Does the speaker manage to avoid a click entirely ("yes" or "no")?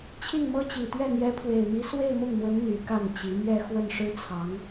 yes